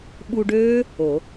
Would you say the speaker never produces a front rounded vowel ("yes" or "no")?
no